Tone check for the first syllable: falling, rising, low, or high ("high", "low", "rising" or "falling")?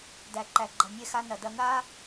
low